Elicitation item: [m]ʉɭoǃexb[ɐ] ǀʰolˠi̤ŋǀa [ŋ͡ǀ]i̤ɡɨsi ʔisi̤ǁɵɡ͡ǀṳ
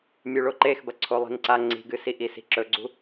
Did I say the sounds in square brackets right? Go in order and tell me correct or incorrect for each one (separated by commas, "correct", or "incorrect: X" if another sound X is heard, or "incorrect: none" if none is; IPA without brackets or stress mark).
incorrect: mʲ, correct, correct